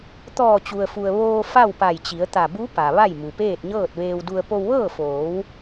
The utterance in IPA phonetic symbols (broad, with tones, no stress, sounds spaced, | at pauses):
t̪ ɔː˧˩ t͡ɕ u˩ ə̯ f u˩ ə̯ ʋ oː˧ f a˥˨ w p a˧˩ j t͡ɕ i˩˧ ə̯ t̪ a˧˩ b u˧˥ p a˩ ʋ a˥˨ j m u˩ p eː˥˨ t̚ ɲ ɤː˥˨ t̚ ʋ eː˧ w d u˧ ə̯ p o˧ w ʋ ɤː˥˨ f oː˩˧ w